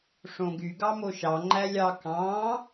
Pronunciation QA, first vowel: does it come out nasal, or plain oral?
nasal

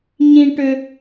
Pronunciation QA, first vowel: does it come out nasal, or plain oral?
nasal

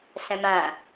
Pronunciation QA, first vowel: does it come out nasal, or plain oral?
nasal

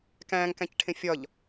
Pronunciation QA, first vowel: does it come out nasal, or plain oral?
nasal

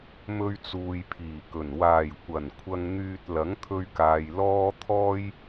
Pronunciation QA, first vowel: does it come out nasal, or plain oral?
oral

